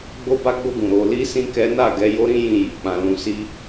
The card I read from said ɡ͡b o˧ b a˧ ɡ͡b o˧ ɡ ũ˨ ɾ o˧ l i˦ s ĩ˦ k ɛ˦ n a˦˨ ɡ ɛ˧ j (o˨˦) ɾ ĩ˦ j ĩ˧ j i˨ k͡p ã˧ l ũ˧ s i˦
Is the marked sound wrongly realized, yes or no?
yes